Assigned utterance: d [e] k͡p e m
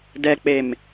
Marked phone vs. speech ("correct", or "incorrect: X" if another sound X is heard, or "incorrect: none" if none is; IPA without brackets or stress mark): incorrect: ɛ